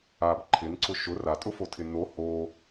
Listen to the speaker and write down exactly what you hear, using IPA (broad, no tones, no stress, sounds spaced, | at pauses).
a b ǃʰ ɪ n ǀ ʊ ʃ ʊ r a tʼ ʊ f o tʰ ɪ n o h o